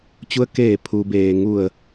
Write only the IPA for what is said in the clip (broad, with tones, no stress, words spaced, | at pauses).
t͡ɕu˧ə̯keː˧˩ pʰu˩beː˩ ŋu˧˩ə̯